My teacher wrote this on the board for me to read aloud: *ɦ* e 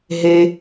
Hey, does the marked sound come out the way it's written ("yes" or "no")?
yes